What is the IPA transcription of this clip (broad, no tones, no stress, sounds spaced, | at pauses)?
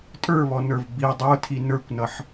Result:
tʼ ə˞ β ɔ n ə˞ v b i dˤ ə˞ tʰ i n ə˞ kʷ n ʌ ħ